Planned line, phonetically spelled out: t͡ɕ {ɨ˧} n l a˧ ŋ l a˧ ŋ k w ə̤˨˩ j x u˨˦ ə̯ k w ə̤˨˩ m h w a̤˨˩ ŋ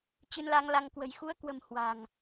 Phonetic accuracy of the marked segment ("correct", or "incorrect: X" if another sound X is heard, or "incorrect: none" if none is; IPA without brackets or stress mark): correct